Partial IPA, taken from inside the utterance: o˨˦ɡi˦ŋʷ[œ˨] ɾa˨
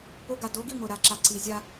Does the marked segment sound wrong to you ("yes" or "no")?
no